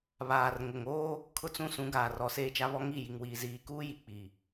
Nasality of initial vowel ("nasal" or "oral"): oral